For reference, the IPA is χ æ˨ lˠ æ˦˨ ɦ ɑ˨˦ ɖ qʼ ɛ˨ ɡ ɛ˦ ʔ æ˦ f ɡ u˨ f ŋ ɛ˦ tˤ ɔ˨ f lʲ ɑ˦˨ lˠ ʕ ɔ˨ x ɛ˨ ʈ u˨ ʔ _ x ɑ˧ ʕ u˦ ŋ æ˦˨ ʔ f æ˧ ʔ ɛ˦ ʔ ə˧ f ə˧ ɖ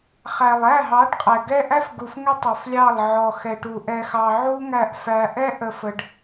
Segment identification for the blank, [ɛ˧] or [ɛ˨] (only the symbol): ɛ˧